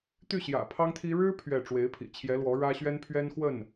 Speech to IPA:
t̪ y˥˩ ɕ j ä̰˨˩ pʰ ɑ˥ ŋ t̪ʰ i˥ ɻ ɻ̩˥ pʰ ɥ ɛ˥˩ ʈ͡ʂ w e˧˥ ɪ̯ pʰ ḭ˨˩ t͡ɕʰ j ɛ˧˥ l w ɔ˧˥ ɻ ä˥ ɕ ɥ ɛ˥ n pʰ ɥ ɛ˥ n x w ə˥˩ n

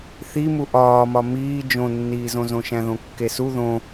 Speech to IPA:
θ i m u ʔ ɒː m ɒ m iː d͡ʒ õ nː iː z õ z õ ʃ æ̃ ð õ kː e s u ð õ

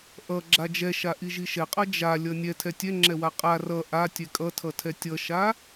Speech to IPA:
ʔ ʌ ɡ͡ǁ a d͡ʒ ɛ ʃ a ʔ i ʒ i ʃ ɛ qʼ ʌ d͡ʒ a lʲ ʌ nʲ ɛ tʰ ɛ tʲ ɛ ŋ͡ǁ ɛ w a qʼ a r ʌ ʔ a tʲ ɛ kʼ ʌ tʰ ʌ tʰ ɛ tʲ ʌ ʃ a

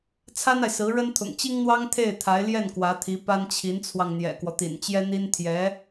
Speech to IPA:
t͡sʰ a˥ n a˨ ɪ̯ s ɹ̩˧˥ ɻ ə˥ n t̪ʰ ʊ̰˨˩ ŋ t͡ɕ i˥ ŋ n̪ w ɑ˥ ŋ t̪ʰ e˥˩ ɪ̯ t̪ʰ a˧˥ ɪ̯ l j ɛ˥˩ n k w ä˧˥ t̪ʰ i˧˥ p a˥ n t͡ɕʰ i˧˥ n t͡sʰ w ɑ˧ ŋ n̪ j ɛ̰˨˩ k w ɔ˦ t̪ ḭ˨˩ n t͡ɕ j ɛ˥ n̪ i˥ n t̪ʰ j ɛ˧˥

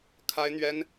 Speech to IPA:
kʰ a˥ ɪ̯ n̪ ɥ ɛ˥ n

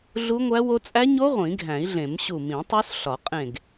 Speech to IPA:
ɮ u˦˥ ŋʷ æ˦˥ w o˦˥ t͡sʼ æ˦˥ ɲ o˦˥ ʁʷ ĩ˨˩˦ ɡʱ æ̃˨˩˦ i̯ ɮ ẽ˨˩˦ m ɕ u˧˩ m ĩ˨˩˦ tˤ o˦˥ s ɬ ɒ˨˩˦ qʼ ẽ˧˩ ɡ

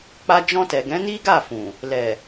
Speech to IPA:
k͡p a˧ d͡ʒ ɔ̃˧ t ɛ˨ ɡ ɛ̃˨˦ n i˦ ɡ a˦˨ f ũ˨ | l ɛ˨

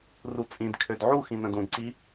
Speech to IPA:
r u t͡sʼ ĩ d kʰ ø d ʕ u x ĩ n ə̃ d ũ d ǀ i

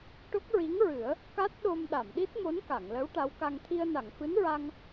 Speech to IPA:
ʈ o˦˥ k̚ ɹ i˧˥ ŋ ɹ ɨ˨˩˦ ə̯ | k a˦˥ t̚ ɗ o˧ m ɗ a˨˩˨ m ɗ i˦˥ t̚ m o˧˥ n k a˨˩˨ ŋ l ə˧˥ w ʈ a˧˥ w k a˧ ŋ t̪ʰ i˧ ə̯ n a˨˩˨ ŋ f ɨ˧˥ n ɹ a˧ ŋ

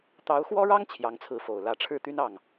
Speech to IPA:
t̪ ɑ˧˥ ʊ̯ x w ɔ˥ ɻ ɑ˥ ŋ t͡ɕʰ j ɑ˧˥ ŋ t͡sʰ ɹ̩˧˥ f o˨˩ ʊ̯ l ä˧˥ ʈ͡ʂʰ ɻ̩˥˩ t̪ y˥ n ɑ˥˩ ŋ

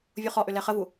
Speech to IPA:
vʲ u χ ɔ ʔ ʏ l ɛ χ ə v u

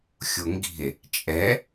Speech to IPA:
xʲ o ŋ ɡ i̤ e̯ | t͡ʃʼ ɛ

